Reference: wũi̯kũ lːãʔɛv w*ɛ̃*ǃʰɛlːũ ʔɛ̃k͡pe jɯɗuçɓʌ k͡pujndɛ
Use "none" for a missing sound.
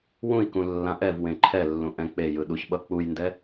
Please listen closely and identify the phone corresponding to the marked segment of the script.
ẽ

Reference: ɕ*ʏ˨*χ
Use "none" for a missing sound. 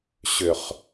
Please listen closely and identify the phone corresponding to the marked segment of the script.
ʏ˨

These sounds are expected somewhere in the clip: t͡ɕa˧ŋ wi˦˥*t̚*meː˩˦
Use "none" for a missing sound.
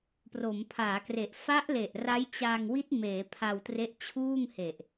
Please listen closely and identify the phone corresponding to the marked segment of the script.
t̚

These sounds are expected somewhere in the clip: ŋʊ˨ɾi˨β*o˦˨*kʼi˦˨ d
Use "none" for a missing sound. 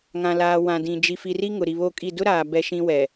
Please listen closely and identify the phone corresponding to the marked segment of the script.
o˦˨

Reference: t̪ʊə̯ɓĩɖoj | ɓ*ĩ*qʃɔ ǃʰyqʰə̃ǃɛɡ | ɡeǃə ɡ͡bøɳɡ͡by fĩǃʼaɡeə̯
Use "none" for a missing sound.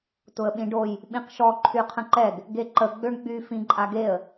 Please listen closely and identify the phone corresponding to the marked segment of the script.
ĩ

